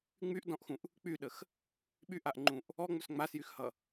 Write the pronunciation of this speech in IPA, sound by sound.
ŋ͡m y ʔ d ɔ̃ ʔ x ũ ʔ | k͡p y ɗ ə x | ɓ y ʔ a ʔ ŋ͡ǃ ũ ʔ | ɔ ŋ͡m ɵ s ŋ͡m a s j y x h ʌ

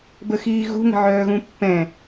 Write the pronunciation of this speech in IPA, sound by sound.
b ə x iː ɣ ṳ ŋ ə̤ ʕ œː ɣ ũ pː ɛ̃

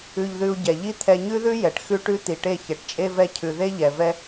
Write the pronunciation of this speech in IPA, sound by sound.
ʉ˧ ʎ ð ʉ˧ u̯ ɟ ɛ˨ ʎ i˦ t̪ʰ ɛ˧ ɲ ʉ˦ ð ʉ˦ j ɛ˨ ʈ x ʉ˦ ʈ ʉ˦ t̪ i˨ ʈ e˦˨ ç ɛ˨ ʈ t͡ʃʼ e˦ v ɛ˦ cʰ ʉ˨ ð e˦ ʎ ɛ˨ v ɛ˦

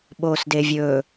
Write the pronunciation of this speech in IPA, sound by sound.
ɓ oː s d e vʲ ɵː

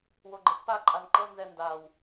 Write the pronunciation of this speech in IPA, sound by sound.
w o ɡ͡ǃ ɛ t p a ǃʼ a n ǃ ɤ n z ɛ n d a w

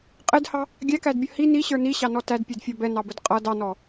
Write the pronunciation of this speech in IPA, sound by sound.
qʼ ɪ d h ɑ | ɡʲ æ k æ d bʲ ʌ h i n i ɕ ə˞ n i ɕ ɑ n ɔ t æ d pʲ ɛ d fʲ ɔ b ɛ n ɑ b ə d qʼ ʌ d ɑ n ɔ

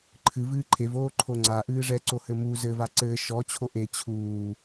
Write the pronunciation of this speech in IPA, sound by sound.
ǃʰ ɨ v ɨː ǃʰ e v oː ǃʰ o ŋ͡ǀ a ʔ ɨː ʐ ɛ ǀ o h ɘ m u z ɘ v a ǀ ɘː ʃ ɔ t͡ɕʰ o ʔ e t͡ɕʰ uː

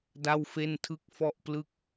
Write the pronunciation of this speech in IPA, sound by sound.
d a˥˩ w f e˥˩ n tʰ ɯ˥˩ k̚ f ɔ˥˩ ʔ p l ɯ˥˩ k̚

